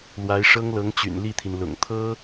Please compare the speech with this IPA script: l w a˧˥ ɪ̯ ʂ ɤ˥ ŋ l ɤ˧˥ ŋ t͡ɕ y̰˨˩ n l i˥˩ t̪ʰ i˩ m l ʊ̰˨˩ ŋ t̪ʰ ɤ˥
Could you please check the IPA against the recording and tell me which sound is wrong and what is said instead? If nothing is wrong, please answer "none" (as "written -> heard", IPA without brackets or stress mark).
m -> n